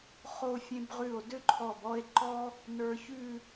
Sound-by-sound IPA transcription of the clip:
χ o˧ fʲ ẽ˧ b ʁ ʉ˧˩ o̯ d ø˥ ǃʰ ɔ˧˩ b ɔ˥˧ e̯ ǃ ɔ˥ | n ə˞˧ ç ʉ˥˧

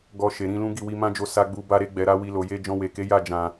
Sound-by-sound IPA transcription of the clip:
ɡ ɔ˨ ʃ e˨ ɾ ĩ˧ l ũ˦ ɡ i˦˨ w i˧ m ã˦ d͡ʒ o˧ s a˧ ɡ͡b u˧ b a˧ ɾ e˧ ɡ͡b ɛ˨ ɾ a˧ w i˧ l o˨ j e˧ d͡ʒ ɔ̃˧ w e˨ k e˨˦ j a˦˨ d͡ʒ ã˨

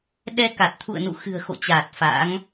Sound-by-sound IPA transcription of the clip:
ɗ ɛ˧ k a˨˩ t̚ t̪ʰ ṵ˧˨ ə̯ n ṵ˧˨ x ɨ̤˨˩ ə̯ x o̰˧˨ t͡ɕ aː˨˩ t̚ f a̰˧˥ ŋ

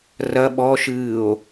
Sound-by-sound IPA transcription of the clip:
r ɐ ɓ ɔ ʃ ɨː o̯

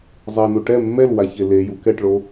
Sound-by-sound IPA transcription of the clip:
zˤ ɛ n u ʈ ɛ mː ɛ l w a ç e l e j u k ɛ ʈ ɭ o

